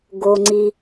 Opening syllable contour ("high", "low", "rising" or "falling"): low